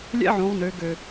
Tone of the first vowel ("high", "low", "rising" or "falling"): high